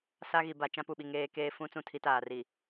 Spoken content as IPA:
s a˦ ɣ i˨ b a˨ t͡ʃ ã˦ p u˨ ɓ i˨ ŋ eː˦ k eː˦ f ũ˦ t͡s ũ˦˨ tʰ i˦ t aː˨ r i˨

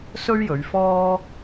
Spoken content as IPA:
s ɵ˥ ɥ j ɵ˨˧ ɥ f ɔː˥

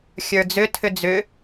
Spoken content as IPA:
xʲ ə˞ d͡z ʏ tʰ ʏ d͡z ʏ

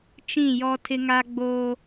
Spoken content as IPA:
t͡ʃ ĩ˦˨ j ɔ˦ tʰ ɪ˦ ŋ a˦ ɡ͡b oː˦

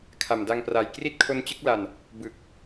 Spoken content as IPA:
kʰ a˨˩ m d a˧ ŋ p r a˨˩ j k r i˥˩ t̚ kʰ o˦˥ n t͡ɕ ɯ˦˥ k̚ l a˧ n | b ɯ˨˩ k̚

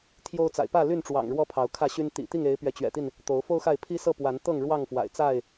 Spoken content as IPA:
t̪ʰ j o˦ ʊ̯ t͡s a̰˨˩ ɪ̯ p ä˥˨ l y˥˨ n ʈ͡ʂ w ɑ̰˨˩ ŋ ɻ w ɔ˦ pʰ ɑ˨˦ ʊ̯ kʰ ä˥˨ ɕ y˦ n t̪ ḭ˨˩ t̪ i˥˨ ŋ e˨˦ ɪ̯ p ɥ ɛ˨˦ t͡ɕ ɥ ɛ̰˨˩ t̪ i˥˨ n | t̪ o˨˦ ʊ̯ f o˦ ʊ̯ x a˥˨ ɪ̯ pʰ i˦ s ɤ˥˨ p w a˨˦ n t̪ ɤ˥˨ ŋ ɻ w ɑ˥˨ ŋ f w a̰˨˩ ɪ̯ t͡s a˥˨ ɪ̯

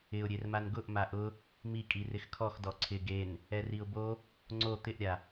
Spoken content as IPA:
ɪ ʊ̯ ɾʲ e r m a n ɡ ʊ ʔ m a ʔ ʊ | m i kʼ i r ɪ x kʰ ɔ x d ɔ ǀʰ ɪ ɡ e n | ɛ r i ʊ̯ b o | ŋ͡ǀ o t̪ ɪ ʔ ɾʲ a

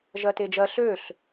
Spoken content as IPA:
ʒ ɜ t e d͡ʒ ɜ ɬ ø ɬ

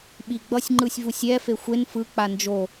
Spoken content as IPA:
ɓ i ɡ͡b ʌ sʲ ŋ͡ǃ ɯ sʲ v u sʲ ɛ f e xʷ e n f ɯ k͡p a n d͡ʒ o

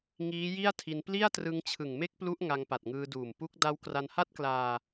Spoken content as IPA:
ŋ iː˦˥ j i˥˩ a̯ tʰ i˧ n p l i˥˩ a̯ t r ɯ˧ ŋ t͡ɕʰ ɯ˨˩ ŋ m e˥˩ k̚ p l u˦˥ ʔ ŋ a˧ ŋ p a˨˩ t̚ ŋ ɯː˧ d uː˨˩ m p u˦˥ k̚ d a˦˥ w k r a˧ n h a˥˩ t̚ k l aː˧

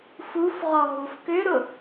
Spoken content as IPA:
f u f ʁ ɔ ɦ u f k ʏ ɾ ʊ

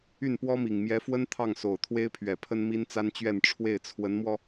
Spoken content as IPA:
y˥˩ n p w ɔ˥ m i˨˩ ŋ m j ɛ˧˥ f w ə˥ n t̪ʰ ɑ˥˩ ŋ s o˨˩ ʊ̯ t̪ʰ w e˥ ɪ̯ pʰ ɥ ɛ˨˩ pʰ ə˥ n m i˥ n t͡s a˥ n t͡ɕ ɥ ɛ˥˧ n ʈ͡ʂʰ w e˥˩ ɪ̯ t͡sʰ w ə˧˥ n m w ɔ˧

